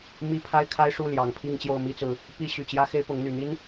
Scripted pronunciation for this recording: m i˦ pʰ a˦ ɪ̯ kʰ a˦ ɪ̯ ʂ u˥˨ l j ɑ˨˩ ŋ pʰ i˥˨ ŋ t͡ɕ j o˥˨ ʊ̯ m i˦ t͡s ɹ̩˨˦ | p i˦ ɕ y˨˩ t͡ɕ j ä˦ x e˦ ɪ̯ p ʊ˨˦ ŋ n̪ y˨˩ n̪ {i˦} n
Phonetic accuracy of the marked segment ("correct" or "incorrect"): correct